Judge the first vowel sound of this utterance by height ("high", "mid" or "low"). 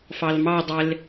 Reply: low